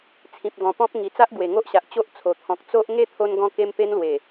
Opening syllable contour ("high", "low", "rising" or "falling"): low